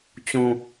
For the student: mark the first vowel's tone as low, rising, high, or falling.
low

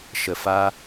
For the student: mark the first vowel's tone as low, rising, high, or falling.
low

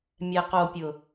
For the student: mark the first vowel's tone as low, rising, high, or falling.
low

